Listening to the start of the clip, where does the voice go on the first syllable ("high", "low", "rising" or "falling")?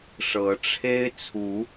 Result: rising